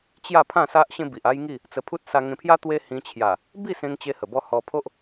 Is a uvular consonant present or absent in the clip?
absent